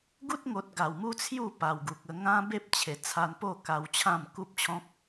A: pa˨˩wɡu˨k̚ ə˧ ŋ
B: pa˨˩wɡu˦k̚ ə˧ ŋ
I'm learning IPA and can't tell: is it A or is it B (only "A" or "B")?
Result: A